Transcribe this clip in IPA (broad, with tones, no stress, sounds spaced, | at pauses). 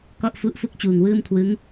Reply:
k ɔ˥˩ ʔ f u˦˥ ʔ f u˥˩ k̚ t͡ɕ uː˨˩ ŋ w ɯː˥˩ m kʰ w ɯ˦˥ ŋ